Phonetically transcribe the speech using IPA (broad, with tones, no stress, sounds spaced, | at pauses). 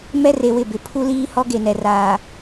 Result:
m ɛ˦ r e˨ w ɪ˦˨ b ɪ˨ pʰ u˦ l iː˦ h ɔ˦ ɡ e˨ n ɛ˨ r aː˨